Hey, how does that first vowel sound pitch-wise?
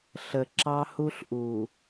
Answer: low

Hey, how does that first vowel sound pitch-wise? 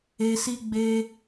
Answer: low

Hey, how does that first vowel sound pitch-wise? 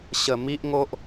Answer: low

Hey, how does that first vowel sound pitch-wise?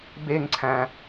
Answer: falling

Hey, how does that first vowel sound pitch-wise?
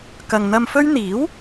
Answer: low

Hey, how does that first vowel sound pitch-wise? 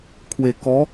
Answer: low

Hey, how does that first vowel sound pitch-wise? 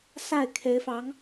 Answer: falling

